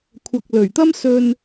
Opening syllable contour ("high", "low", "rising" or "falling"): low